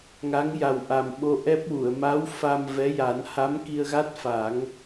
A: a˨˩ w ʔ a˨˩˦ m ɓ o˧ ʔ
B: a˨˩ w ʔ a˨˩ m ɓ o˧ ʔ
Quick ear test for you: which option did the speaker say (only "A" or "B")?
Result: B